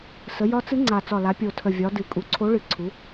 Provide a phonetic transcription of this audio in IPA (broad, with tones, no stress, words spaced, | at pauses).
sə˩˧ jɒ˨˥t͡sɨ˨˥ ŋ͡ǀa˨˩ t͡sɒ˨˩la˩˧ pʲo˨˩tʰə˨˩vʲɒ˩˧ dɨ˨˩ kʼu˩˧ǀʰo˨˥ ɭɨ˨˩ǀʰu˩˧